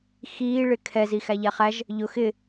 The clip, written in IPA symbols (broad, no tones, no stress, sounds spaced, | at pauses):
x iː ɭ ɪ kʰ ɛ z i x æ ʎ æ χ æ ʒ | ʎ ʊ x ɪ